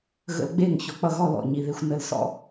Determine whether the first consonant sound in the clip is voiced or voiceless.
voiced